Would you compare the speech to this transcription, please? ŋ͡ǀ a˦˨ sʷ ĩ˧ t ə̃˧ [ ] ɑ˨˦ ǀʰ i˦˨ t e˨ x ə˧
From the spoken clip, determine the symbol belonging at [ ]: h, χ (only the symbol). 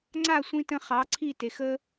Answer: χ